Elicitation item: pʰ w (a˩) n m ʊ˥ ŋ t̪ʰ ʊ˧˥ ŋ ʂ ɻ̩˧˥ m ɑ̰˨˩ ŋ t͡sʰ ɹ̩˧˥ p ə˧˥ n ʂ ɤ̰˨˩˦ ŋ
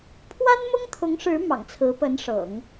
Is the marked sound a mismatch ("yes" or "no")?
yes